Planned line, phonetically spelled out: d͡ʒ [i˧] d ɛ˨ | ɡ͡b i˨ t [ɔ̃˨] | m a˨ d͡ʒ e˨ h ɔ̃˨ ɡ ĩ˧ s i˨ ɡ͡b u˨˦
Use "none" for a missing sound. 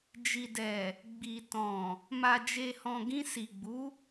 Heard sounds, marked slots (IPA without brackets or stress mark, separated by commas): i˨, ɔ̃˨